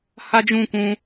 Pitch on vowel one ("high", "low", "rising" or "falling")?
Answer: high